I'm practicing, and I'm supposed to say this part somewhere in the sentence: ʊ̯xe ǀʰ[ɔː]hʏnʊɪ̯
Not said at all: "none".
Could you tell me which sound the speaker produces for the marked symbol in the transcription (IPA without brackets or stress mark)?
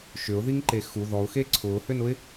ʊː